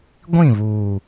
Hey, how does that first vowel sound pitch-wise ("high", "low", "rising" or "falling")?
falling